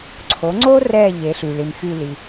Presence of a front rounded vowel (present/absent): present